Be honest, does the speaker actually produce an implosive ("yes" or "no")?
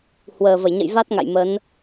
no